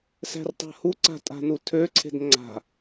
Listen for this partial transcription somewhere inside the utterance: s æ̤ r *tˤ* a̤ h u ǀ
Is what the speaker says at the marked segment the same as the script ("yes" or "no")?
yes